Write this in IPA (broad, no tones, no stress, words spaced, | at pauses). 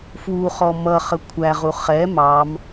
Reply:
fwuχɔ mʌχə kʷʰæʁu χɛ mɑm